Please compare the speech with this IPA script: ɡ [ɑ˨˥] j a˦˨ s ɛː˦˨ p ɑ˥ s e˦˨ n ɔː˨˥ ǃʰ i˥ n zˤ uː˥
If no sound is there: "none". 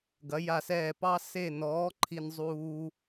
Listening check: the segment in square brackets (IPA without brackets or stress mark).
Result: ɐ˨˥